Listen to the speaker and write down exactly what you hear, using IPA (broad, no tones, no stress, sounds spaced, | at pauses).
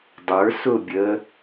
dˤ ə˞ s ʊ bʲ ə